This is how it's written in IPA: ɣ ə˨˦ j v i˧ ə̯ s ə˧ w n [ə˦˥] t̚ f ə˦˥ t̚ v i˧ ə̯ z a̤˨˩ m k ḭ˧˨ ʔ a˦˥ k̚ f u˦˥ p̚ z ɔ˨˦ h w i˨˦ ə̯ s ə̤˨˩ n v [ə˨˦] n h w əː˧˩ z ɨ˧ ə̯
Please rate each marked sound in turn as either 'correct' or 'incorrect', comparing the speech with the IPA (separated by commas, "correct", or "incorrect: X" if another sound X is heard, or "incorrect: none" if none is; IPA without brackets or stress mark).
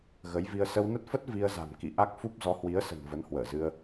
correct, correct